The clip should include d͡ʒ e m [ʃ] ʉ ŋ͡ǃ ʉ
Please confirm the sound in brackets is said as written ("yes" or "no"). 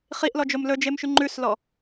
yes